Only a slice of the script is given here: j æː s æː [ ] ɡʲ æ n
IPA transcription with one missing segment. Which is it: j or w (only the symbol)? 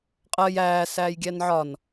j